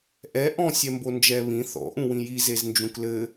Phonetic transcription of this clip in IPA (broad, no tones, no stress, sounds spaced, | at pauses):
ʔ ɛ ʔ ɔ̃ sʲ ɛ m b o n d͡ʒ ɛ β ĩ θ ɔ̰ ʔ ũ w ĩ j i z e z n d͡ʒ ũ k l ɘ